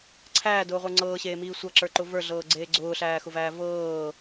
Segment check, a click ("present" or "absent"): present